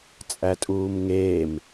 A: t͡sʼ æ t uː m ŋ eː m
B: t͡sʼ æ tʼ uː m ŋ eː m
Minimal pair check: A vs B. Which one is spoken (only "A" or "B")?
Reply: B